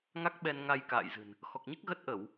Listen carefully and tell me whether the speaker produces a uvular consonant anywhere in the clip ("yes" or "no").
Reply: no